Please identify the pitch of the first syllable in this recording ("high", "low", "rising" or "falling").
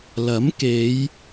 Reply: rising